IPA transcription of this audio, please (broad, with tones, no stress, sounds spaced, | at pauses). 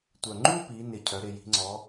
tʷ œ˨˩ ŋ͡ǃ u˥˧ p i˩˧ n ɪ˨˩ cʰ œ˩˧ ɾ ɪ˨˩ j i̤˩˧ ŋ͡ǀ ɔ˩˧